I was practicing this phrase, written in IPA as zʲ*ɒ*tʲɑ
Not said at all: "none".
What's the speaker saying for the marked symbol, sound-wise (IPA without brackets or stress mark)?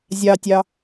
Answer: ɑ